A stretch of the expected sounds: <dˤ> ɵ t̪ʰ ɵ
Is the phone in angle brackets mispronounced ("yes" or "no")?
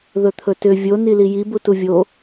yes